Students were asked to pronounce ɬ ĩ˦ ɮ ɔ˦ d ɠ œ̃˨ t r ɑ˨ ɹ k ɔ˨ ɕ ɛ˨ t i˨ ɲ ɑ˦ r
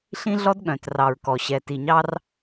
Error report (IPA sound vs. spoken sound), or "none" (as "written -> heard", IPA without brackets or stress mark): none